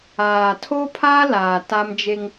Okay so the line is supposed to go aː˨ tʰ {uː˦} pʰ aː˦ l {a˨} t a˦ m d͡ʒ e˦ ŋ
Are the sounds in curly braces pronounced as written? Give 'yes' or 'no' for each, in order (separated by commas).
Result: no, no